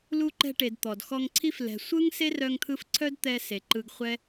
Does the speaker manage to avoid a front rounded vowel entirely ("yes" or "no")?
no